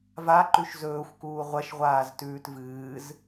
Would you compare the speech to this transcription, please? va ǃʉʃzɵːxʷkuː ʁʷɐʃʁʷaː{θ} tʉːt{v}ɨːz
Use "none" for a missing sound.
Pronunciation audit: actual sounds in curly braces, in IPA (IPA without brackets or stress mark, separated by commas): z, v